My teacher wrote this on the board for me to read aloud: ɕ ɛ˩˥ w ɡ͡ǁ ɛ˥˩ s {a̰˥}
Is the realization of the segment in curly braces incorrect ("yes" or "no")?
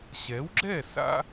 no